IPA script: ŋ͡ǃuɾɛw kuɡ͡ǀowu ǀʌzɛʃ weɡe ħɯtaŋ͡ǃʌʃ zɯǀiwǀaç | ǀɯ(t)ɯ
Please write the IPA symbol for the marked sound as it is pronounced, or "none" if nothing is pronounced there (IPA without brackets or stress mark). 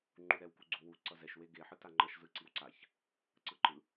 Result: ǃ